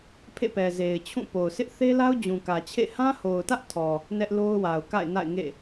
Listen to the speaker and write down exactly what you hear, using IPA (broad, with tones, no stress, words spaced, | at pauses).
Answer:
pʰḛ˦˨pɛ˨ze˨ɪ̯t͡ɕʰũ˦˨ po˨ʊ̯sʰɪ˦ʔ θe˦la˦ʊ̯ d͡ʑũ˨kä˨t͡ɕʰḛ˦˨ hã˦ho˨ʊ̯tä˦ʔtʰɔ˨ | nɛ˦ʔlo˦ʊ̯wa˨ʊ̯ ka̰˦˨ɪ̯na̰˦˨ɪ̯ŋḛ˦˨